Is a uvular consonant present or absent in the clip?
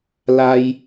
absent